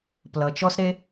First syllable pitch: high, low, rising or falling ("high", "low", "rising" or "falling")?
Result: low